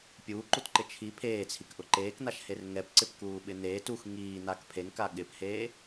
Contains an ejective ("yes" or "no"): no